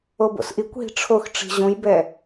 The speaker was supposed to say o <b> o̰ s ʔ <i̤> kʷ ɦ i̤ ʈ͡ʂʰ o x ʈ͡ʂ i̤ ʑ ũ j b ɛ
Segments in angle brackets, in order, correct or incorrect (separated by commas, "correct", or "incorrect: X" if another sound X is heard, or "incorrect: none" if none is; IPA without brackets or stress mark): correct, incorrect: i